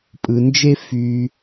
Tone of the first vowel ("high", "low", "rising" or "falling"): low